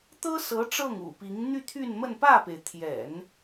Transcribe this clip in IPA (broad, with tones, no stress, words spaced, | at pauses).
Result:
t̪ɤ˥sɤ˧˥ ʈ͡ʂɤ˥˩ŋṵ˨˩pi˧˥ŋ n̪y˥˧t̪ʰy˥˧nmə˥˧n pä˥˩pe˩ɪ̯ t̪ʰjɛ̰˨˩˦n